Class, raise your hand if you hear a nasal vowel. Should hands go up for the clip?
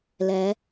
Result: no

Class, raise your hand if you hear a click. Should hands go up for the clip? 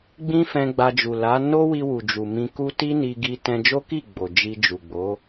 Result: no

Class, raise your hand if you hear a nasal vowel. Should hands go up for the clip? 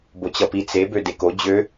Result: no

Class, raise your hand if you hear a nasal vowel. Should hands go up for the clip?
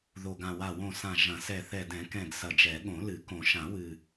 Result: yes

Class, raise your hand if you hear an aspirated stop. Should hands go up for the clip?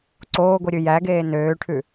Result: yes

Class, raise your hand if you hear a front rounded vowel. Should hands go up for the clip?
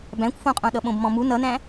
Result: no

